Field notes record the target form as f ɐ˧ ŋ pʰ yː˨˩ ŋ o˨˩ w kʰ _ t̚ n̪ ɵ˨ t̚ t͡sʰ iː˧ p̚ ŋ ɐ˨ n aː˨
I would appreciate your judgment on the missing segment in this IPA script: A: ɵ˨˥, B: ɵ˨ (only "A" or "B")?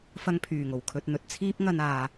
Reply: B